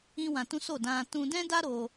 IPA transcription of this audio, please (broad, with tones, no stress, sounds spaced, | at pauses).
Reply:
ĩ˦ w ã˧ t ũ˦ s o˦˨ d ã˧ t ũ˧ d ɛ̃˦ d a˦ ɾ o˧